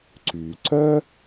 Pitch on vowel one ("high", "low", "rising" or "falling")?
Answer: low